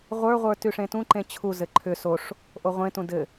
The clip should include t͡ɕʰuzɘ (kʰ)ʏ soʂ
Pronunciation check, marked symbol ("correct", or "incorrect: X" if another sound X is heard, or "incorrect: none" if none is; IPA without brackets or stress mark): incorrect: ǃʰ